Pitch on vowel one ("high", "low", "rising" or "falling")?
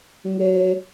high